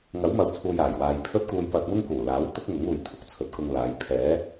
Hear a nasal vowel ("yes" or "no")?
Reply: no